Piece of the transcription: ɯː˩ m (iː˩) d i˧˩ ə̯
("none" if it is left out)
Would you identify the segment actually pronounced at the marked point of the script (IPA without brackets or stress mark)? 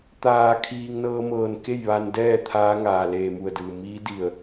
iː˧˥